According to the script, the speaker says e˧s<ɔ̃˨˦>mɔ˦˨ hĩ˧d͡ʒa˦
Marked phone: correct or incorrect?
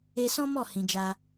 incorrect: ɔ̃˦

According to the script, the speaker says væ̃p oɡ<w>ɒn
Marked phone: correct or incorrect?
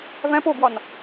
correct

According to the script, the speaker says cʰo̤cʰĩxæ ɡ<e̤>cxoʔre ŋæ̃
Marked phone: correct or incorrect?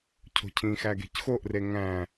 correct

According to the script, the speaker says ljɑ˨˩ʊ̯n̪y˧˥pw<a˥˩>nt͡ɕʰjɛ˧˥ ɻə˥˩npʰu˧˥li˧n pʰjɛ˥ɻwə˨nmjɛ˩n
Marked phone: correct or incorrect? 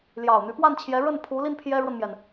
correct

